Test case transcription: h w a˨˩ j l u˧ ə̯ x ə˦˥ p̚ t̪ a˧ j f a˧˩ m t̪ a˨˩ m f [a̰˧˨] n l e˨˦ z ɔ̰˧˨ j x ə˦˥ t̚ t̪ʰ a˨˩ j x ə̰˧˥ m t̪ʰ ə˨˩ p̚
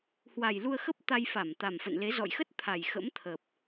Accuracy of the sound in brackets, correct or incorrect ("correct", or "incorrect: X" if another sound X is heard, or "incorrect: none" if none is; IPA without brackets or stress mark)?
incorrect: ə̰˧˨